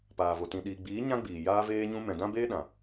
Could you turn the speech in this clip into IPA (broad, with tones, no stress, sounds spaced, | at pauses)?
p aː˨ v o˨ t ĩ˨ ɗ iː˨ ɡ͡b iː˨˦ ɲ ã˦ ɡ͡b iː˨ j aː˧ v eː˧ ɲ ũ˧ m ɛ̃˨ d ã˦ b eː˦ ɗ ã˨